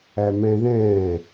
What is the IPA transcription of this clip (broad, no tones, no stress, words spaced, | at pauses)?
æmɛ̃ðɛ̃ː